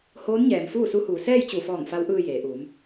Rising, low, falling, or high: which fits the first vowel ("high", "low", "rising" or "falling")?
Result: rising